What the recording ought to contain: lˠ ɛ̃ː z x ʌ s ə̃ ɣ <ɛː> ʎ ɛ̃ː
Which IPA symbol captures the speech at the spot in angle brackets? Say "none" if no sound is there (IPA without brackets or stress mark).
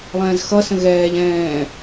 ɛː